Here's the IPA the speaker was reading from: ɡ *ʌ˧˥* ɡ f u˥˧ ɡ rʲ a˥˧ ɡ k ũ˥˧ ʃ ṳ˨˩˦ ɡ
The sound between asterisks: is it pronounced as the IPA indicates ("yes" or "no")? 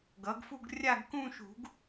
no